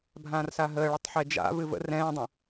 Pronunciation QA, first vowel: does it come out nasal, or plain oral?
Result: nasal